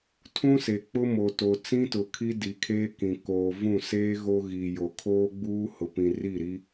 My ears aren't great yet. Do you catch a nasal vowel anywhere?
yes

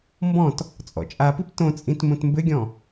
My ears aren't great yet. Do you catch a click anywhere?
no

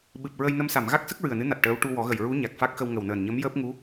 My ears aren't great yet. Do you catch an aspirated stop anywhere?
no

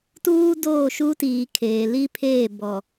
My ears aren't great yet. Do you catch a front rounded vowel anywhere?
no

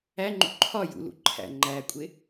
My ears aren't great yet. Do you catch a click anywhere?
yes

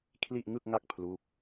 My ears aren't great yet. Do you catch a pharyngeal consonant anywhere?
no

